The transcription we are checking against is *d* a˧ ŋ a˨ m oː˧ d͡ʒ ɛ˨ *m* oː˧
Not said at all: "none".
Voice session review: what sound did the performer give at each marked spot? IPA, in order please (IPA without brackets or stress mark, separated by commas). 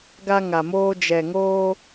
ɡ, ŋ